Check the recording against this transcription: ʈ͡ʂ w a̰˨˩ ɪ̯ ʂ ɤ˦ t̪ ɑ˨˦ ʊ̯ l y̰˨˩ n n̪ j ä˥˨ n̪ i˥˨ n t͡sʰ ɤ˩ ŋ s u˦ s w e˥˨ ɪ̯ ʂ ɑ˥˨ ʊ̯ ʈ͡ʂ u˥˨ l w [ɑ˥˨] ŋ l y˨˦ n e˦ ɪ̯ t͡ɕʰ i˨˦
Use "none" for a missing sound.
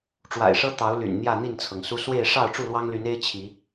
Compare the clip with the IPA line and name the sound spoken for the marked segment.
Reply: ɑ˦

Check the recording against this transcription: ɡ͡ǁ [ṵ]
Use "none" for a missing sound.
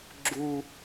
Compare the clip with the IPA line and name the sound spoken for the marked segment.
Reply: u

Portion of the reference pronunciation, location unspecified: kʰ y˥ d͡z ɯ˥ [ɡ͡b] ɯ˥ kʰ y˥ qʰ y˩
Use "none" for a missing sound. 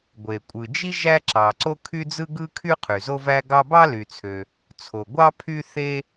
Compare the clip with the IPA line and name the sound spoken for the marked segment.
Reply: ɡ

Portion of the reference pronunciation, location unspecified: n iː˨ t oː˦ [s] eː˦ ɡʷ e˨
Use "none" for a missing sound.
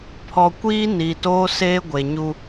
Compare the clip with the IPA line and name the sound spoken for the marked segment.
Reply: s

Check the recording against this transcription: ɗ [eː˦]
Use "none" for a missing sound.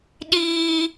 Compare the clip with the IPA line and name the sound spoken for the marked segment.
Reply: iː˦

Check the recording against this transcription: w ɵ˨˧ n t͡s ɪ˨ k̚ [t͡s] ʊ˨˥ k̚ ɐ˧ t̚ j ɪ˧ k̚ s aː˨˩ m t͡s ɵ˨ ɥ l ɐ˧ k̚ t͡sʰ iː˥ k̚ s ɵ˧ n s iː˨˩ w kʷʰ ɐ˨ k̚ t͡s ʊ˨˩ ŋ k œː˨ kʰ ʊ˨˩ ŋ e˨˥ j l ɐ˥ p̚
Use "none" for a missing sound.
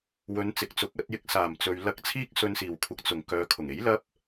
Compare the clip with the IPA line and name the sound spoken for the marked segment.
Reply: t͡s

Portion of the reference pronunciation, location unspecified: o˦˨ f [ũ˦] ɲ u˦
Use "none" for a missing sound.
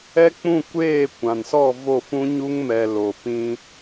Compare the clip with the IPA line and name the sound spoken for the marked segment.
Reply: ũ˦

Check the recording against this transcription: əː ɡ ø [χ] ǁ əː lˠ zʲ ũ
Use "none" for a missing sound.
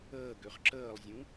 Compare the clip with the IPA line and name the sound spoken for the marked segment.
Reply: χ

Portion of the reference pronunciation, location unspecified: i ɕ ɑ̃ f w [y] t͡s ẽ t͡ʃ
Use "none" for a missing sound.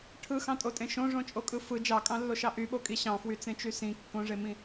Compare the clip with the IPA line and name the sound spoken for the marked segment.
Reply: y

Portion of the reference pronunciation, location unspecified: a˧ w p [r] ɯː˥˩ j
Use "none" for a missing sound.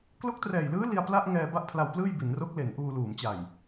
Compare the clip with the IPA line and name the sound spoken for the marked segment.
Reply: l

